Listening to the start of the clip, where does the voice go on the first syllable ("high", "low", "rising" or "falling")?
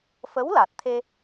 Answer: rising